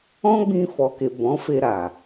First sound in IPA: ɔ̃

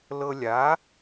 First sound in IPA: l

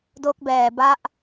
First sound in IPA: d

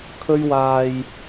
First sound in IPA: kʰ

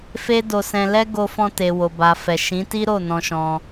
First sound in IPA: f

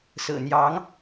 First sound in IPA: s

